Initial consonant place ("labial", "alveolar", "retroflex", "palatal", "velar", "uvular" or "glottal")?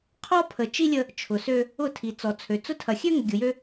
uvular